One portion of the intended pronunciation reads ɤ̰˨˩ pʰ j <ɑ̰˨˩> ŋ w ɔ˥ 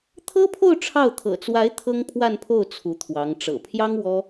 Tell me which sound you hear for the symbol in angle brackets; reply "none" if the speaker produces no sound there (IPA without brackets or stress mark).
ɑ˥